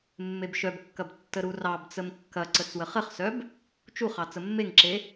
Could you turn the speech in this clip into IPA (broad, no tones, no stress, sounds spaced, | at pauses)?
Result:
mː e b ʃ œ b kː ɐ b tː ə ɾ u r ɑ b t͡s ə m kː ɐ ǀ ə t͡s w ə χ ə χ s œ b | t͡ʃ u χ ɑ t͡s ə mː e ŋ ǁ e